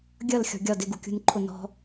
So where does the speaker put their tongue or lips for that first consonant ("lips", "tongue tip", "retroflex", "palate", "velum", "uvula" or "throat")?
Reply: velum